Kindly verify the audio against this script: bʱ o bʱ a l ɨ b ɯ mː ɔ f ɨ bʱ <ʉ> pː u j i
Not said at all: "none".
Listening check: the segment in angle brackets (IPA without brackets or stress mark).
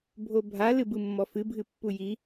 ɨ